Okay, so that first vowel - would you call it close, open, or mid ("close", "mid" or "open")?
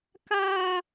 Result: open